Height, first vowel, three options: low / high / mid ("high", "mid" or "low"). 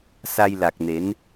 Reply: low